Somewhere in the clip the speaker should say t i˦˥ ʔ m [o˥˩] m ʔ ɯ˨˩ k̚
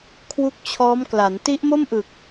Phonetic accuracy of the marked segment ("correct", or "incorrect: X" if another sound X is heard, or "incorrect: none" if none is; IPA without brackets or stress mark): correct